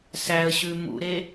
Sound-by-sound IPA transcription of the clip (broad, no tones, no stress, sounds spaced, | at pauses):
s æ ə̯ ɕ ʉ m ṵ ɾ e